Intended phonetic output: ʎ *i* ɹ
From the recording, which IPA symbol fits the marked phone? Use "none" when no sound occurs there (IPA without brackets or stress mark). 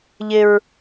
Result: ɪ